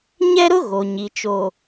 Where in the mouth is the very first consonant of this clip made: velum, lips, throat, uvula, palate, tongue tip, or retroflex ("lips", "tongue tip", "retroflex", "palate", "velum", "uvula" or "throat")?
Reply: palate